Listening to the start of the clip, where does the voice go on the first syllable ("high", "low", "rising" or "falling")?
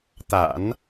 low